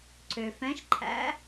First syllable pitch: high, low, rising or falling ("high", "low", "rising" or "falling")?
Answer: low